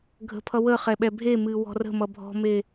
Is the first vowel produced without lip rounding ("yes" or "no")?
yes